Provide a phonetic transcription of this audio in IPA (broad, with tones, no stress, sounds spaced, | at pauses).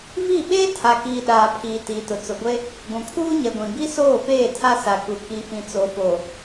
v i˦˨ ɓ eː˦ tʰ a˨ k iː˨ ɗ aː˨ pʰ iː˨ t iː˨ t ʊ˨ t͡s ʊ˨ ɡʷ e˦ | ɡʷ ũ˨ kʰ uː˦ ɲ ɛ˨ ɡʷ ĩ˨ b i˦ s oː˦˨ f eː˦˨ tʰ a˦ s a˨ k u˨ k i˨ f ĩ˨ t͡s o˨ f o˨